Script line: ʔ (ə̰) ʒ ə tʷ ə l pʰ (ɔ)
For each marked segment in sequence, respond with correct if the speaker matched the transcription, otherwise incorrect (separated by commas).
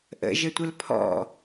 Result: correct, incorrect